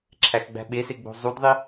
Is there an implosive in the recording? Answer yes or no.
yes